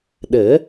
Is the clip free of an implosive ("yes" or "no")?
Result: no